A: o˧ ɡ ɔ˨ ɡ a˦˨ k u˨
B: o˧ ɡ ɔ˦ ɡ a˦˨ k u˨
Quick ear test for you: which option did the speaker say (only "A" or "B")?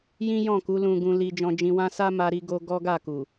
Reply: B